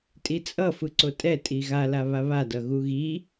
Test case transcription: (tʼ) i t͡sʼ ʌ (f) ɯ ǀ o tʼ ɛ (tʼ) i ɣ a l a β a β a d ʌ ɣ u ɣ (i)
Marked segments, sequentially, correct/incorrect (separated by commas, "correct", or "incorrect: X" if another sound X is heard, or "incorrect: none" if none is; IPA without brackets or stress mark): correct, correct, correct, correct